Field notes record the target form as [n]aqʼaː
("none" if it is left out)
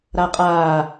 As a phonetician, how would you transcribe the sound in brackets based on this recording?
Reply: ɾ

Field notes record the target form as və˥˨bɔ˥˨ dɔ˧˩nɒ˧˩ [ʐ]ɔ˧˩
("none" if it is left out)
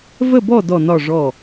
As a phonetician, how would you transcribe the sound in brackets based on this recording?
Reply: ʐ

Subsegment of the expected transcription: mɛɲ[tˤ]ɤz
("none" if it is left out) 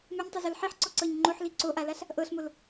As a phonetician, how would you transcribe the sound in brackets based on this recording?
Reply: tˤ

